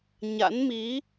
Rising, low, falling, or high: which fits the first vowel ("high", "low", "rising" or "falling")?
rising